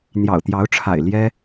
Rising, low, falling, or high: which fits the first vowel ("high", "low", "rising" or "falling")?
low